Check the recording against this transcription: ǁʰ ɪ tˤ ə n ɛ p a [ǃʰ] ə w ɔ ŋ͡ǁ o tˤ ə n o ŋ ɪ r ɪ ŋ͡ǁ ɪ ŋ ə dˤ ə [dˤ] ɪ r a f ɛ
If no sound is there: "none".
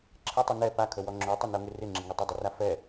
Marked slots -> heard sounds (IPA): kʰ, dˤ

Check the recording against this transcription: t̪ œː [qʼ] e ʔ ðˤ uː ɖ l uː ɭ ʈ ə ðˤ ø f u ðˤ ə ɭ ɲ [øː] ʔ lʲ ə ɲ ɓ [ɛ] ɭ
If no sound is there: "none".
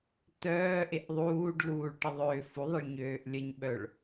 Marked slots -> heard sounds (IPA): ʔ, øː, œ

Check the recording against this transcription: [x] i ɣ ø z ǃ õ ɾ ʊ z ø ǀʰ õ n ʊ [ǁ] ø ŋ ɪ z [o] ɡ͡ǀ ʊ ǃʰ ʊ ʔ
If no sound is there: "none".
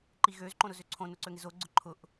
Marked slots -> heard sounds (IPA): ǃ, ǀ, o

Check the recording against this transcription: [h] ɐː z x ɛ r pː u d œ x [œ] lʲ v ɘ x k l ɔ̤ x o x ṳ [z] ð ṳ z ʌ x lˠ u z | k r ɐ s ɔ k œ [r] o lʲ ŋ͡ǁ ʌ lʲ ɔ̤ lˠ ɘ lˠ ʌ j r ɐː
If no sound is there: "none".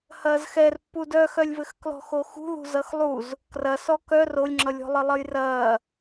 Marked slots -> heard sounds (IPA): h, œ, none, r

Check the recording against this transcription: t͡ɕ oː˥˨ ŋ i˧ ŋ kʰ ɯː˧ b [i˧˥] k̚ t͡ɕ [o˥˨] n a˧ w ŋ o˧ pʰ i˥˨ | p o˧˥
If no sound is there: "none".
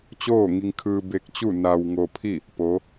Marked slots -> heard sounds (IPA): e˧˥, u˥˨

